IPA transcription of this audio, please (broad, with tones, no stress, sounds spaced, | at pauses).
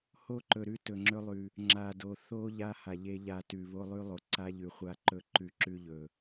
h o˦ ǃ ɵ˨ ɾ ʉ˦ t ɵ˨ ŋ͡ǁ ɵ˦ lˠ ʉ˨ | ŋ͡ǁ a˨ d o˨ θ o˦ ʎ a˦ h a˨ ʎ e˦ ʎ a˨ t ʉ˨ β o˦ lˠ ʉ˦ lˠ o˨ ǀ a˦ ʎ ʉ˨ χʷ a˦˨ ǃ ɵ˦ ǃ ʉ˦ ǁ ʉ˦ ʎ ɵ˨